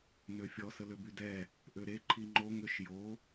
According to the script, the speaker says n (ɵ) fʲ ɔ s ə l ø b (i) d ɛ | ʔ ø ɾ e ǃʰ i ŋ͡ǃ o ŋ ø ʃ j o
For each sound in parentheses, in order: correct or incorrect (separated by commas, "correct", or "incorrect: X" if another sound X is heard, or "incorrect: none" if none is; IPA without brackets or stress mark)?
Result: incorrect: ø, incorrect: y